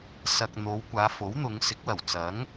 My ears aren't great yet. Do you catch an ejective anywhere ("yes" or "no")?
no